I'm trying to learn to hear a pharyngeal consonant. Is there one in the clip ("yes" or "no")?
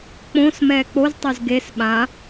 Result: no